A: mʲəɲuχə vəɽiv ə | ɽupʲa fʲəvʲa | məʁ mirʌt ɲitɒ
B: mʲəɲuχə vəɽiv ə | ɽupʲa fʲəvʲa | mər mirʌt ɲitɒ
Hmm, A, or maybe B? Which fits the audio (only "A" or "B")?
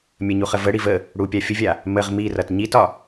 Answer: A